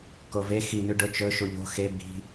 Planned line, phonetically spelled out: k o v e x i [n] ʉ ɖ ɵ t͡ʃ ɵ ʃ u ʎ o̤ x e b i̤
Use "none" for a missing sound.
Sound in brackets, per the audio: n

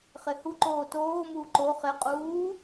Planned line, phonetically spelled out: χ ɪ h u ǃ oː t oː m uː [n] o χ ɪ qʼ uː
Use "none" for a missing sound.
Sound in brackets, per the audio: ǃ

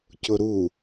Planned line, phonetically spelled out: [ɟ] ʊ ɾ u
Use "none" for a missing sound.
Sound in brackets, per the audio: c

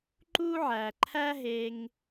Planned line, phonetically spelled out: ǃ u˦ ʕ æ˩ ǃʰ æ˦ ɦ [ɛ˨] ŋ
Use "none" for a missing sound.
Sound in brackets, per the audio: e˨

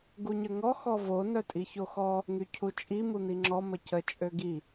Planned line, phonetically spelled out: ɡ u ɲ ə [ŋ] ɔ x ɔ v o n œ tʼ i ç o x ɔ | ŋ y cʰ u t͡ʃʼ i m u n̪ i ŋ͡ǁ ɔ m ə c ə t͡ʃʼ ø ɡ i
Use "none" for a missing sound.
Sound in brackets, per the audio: ŋ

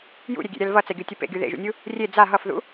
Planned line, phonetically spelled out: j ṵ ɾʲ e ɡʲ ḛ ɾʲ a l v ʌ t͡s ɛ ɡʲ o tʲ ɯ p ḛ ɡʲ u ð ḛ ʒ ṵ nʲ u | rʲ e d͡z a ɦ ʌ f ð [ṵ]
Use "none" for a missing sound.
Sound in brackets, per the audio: ṵ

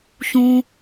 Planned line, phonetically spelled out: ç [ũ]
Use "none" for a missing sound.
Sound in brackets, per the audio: ũ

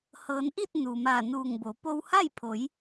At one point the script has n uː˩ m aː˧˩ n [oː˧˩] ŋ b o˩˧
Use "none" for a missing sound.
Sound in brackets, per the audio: uː˧˩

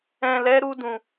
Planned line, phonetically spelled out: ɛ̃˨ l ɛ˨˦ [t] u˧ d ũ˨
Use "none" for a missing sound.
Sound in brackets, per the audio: ɾ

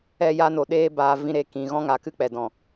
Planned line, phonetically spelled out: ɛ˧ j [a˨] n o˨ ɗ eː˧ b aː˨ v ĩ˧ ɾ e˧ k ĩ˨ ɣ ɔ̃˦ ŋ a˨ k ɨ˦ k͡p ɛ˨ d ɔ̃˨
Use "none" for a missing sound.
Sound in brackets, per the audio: a˧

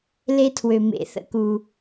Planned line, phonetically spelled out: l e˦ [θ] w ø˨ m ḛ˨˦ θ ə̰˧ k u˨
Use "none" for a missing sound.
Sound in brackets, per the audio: tʰ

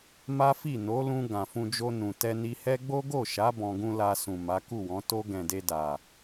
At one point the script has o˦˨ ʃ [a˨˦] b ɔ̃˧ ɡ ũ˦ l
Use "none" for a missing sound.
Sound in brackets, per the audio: a˨˦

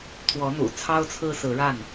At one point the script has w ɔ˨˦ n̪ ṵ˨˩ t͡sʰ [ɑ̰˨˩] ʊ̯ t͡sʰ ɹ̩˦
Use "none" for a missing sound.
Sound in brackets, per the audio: ɑ˦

